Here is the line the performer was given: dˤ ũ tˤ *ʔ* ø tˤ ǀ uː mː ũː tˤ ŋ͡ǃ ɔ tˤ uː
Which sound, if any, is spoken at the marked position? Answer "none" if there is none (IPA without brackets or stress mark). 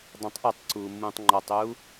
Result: ʔ